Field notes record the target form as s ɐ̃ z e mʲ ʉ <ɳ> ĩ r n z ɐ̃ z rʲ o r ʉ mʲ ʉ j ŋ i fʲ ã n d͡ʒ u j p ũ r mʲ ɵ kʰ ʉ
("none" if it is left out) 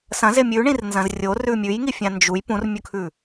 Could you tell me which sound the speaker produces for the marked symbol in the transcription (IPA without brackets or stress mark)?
ɳ